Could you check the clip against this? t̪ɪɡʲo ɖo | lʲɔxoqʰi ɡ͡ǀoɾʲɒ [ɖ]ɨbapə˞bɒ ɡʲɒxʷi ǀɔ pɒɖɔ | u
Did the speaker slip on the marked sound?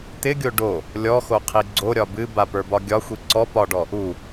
yes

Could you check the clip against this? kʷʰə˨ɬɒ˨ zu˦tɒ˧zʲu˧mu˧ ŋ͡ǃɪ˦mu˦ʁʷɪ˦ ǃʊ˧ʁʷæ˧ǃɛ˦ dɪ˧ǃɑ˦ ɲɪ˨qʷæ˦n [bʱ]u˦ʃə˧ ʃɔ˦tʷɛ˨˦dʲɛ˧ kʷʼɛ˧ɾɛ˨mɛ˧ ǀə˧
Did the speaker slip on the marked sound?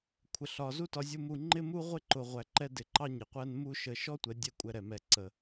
yes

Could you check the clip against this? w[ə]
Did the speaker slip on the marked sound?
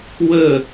no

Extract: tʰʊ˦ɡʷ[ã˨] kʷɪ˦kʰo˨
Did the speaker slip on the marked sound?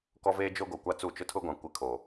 no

